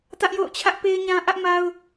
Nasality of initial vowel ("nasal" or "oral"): oral